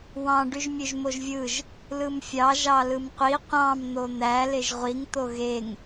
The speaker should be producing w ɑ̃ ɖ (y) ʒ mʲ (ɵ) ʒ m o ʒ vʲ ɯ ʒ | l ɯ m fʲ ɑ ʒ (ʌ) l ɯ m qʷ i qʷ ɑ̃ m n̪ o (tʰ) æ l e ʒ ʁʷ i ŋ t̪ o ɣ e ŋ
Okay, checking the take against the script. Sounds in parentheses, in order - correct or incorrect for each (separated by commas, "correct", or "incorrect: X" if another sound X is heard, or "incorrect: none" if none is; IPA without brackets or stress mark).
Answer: correct, incorrect: ø, incorrect: ɑ, incorrect: n̪